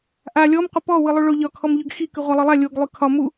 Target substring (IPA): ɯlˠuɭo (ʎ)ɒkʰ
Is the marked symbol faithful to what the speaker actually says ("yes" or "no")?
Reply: yes